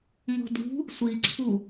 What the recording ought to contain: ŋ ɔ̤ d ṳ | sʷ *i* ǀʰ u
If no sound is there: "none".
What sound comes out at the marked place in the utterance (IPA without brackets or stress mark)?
i